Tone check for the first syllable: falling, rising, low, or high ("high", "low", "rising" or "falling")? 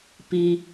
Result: high